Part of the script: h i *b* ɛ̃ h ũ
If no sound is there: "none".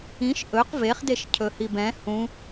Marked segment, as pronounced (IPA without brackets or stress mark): b